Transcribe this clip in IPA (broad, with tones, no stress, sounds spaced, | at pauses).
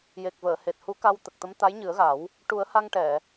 j e˨˩ k̚ v əː˨˩˨ h e˨˩ t̚ h u˧˥ k a˧ w t̪ ə˨˩ k̚ t̪ ə˧˥ m t̪ a˧˥ j ɲ ɨ˨˩˦ ə̯ ɣ a˨˩˦ w | ʈ u˨˩˦ ə̯ h a˧ ŋ ʈ ɛ˨˩˨